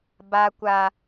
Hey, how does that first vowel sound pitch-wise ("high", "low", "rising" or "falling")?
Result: high